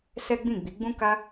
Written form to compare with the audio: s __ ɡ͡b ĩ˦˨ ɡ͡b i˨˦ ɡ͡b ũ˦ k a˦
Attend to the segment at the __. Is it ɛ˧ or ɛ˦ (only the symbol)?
ɛ˦